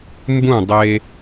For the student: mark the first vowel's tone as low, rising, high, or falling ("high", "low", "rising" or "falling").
falling